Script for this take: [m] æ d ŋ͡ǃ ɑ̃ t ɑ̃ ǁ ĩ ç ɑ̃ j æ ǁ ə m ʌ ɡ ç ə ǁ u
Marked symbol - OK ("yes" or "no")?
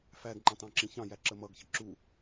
no